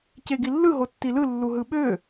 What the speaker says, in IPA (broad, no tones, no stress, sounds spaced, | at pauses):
c e ɡ i lː ɯ ɦ o tː i l ɯ lː u ɦ ɯ ɓ ø